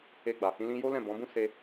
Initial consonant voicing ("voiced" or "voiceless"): voiced